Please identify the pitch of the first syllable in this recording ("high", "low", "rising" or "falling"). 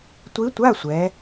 rising